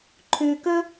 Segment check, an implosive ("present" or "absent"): absent